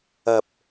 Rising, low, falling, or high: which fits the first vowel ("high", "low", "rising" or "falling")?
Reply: low